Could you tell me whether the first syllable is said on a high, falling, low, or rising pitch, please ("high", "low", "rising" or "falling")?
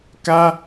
high